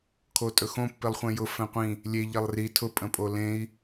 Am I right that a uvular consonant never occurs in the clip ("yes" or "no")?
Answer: no